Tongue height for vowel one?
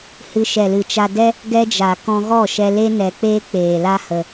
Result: high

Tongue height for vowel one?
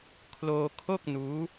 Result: mid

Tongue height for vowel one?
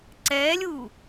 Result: mid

